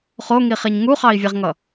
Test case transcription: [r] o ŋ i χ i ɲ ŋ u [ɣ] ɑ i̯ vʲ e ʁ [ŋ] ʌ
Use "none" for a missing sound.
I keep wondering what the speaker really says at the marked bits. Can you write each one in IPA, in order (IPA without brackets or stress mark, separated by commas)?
χ, χ, ŋ